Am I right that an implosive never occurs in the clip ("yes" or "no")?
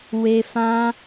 yes